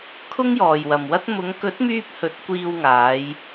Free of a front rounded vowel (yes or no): no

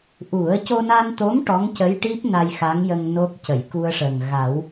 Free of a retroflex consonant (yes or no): no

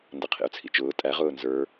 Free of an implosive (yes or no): yes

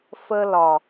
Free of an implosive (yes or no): yes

